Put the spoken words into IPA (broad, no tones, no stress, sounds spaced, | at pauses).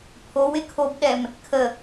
pʰ o w ɪ kʰ o b ɗ ɛ m | kʰ ə